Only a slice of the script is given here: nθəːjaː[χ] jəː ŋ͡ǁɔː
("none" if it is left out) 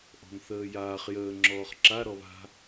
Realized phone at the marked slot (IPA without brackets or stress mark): χ